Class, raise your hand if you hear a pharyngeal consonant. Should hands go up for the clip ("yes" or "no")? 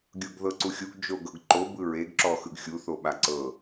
no